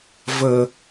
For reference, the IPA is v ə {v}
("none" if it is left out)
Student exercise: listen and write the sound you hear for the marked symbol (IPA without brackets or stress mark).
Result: none